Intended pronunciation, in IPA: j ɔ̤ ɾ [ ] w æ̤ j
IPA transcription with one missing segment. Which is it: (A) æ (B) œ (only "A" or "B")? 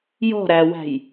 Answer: A